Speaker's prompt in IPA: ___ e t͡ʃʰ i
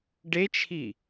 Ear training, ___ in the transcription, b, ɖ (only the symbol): ɖ